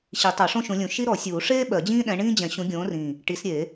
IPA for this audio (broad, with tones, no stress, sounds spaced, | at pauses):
ɕ i˨˩˦ tˤ o˨˩˦ ʂ õ˥ ʃ ũ˨˦ lʲ ũ˨˩˦ ʃ i˥ ɾ ɔ˨˩˦ sʲ uː˨˩˦ ʂ eː˥ ɓ ɜ˨˩˦ d͡ʑ ĩː˥ ɗ ɛ̃˨˦ ɳ ĩː˥ d͡ʑ ɛ̃˨˩˦ ɕ ũ˨˦ ɡʲ õː˨˦ r ĩ˨˩ | ʈ i˨˦ s ɾʲ e˨˩˦